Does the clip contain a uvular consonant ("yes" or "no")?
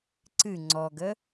no